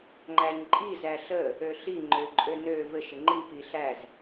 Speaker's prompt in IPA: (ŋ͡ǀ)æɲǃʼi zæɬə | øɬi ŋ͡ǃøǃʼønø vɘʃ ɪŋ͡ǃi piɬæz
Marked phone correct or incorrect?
incorrect: ŋ͡ǃ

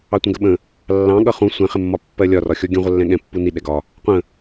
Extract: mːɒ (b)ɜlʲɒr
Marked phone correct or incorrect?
incorrect: pː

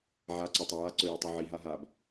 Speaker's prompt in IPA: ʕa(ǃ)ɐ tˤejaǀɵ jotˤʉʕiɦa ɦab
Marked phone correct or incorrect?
incorrect: ǀ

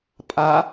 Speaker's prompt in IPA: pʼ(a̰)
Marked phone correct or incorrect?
incorrect: a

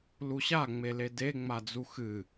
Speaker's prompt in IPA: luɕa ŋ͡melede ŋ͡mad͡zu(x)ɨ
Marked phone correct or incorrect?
correct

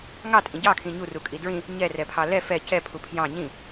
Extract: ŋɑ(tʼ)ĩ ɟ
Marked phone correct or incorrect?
correct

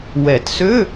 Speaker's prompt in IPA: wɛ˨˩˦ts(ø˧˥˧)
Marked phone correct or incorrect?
correct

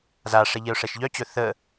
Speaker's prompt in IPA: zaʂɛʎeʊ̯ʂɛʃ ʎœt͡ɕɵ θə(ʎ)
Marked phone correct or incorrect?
incorrect: none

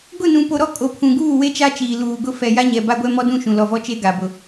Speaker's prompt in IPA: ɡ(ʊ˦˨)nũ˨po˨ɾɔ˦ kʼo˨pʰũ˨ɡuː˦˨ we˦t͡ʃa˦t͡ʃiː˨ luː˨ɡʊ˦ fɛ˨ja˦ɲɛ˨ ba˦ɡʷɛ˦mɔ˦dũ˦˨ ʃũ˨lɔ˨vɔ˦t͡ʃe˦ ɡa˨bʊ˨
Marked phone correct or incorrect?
correct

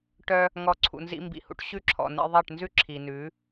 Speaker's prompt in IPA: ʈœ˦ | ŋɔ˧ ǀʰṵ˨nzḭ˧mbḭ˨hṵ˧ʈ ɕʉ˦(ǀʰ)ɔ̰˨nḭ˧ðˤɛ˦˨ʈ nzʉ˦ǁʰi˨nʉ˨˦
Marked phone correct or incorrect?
incorrect: ǁʰ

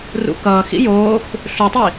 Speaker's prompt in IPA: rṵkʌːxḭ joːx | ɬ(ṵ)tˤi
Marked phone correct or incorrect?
incorrect: u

